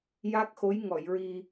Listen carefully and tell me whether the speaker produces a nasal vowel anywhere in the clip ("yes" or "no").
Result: no